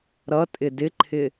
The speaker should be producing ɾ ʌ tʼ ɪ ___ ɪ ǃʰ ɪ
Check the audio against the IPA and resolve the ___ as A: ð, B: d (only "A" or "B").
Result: B